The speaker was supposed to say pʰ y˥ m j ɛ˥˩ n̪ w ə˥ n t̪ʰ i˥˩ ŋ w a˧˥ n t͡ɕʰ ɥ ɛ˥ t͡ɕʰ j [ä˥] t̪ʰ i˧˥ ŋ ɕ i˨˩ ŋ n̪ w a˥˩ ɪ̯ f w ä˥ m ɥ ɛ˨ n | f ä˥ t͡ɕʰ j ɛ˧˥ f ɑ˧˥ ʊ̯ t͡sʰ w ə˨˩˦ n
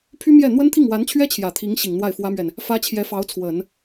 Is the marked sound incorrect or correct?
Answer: incorrect